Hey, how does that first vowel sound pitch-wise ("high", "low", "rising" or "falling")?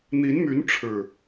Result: rising